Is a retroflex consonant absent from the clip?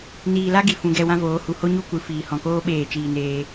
yes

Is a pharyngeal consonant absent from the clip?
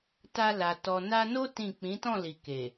yes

